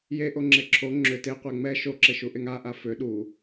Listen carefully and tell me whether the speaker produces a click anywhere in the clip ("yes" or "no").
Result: yes